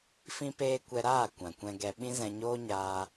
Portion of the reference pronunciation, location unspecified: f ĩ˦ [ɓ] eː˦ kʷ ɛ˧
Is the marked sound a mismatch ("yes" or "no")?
yes